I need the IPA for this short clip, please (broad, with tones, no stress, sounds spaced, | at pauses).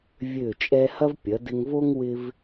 vʲ ø˧˩ t͡ʃʼ ɛ˧ h ɐ˥ v pʲ ɐ˩˧ d ɪ˧ ŋ v o˥ ŋ w ɪ˥ v